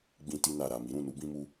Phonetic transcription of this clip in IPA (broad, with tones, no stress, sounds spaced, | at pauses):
ɡ͡b ĩ˧ t i˧ n a˨ ɾ a˨ m i˨˦ ɾ ũ˦˨ n u˨˦ b ĩ˧ m u˧